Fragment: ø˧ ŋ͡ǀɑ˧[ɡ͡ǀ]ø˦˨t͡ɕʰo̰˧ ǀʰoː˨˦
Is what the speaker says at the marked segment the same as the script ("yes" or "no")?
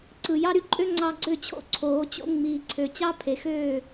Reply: yes